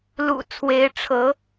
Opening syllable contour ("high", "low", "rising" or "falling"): low